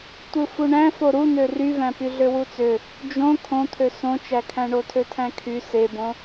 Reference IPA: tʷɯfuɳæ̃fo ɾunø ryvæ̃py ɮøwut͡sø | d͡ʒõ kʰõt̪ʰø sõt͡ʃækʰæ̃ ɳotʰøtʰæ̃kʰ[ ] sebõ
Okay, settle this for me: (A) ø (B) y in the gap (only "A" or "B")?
B